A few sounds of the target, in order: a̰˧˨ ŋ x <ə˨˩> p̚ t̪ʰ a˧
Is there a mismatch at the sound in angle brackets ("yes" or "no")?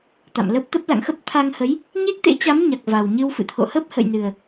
yes